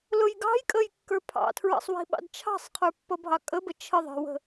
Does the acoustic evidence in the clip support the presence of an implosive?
yes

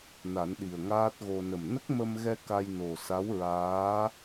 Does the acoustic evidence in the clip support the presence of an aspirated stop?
no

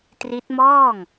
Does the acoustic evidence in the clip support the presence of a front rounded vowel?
no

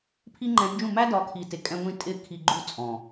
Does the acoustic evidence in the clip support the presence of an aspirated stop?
yes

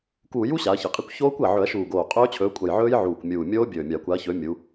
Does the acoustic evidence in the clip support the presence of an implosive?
no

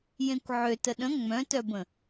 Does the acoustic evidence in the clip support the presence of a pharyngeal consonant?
yes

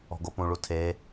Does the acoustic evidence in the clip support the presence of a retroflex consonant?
yes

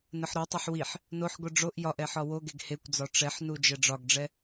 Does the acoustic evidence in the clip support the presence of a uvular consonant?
no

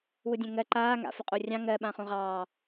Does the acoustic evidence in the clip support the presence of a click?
yes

